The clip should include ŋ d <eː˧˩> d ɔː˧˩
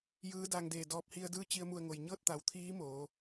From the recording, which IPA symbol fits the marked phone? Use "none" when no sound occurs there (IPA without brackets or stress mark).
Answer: eː˧˩